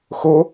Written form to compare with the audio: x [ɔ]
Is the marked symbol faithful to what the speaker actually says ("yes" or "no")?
no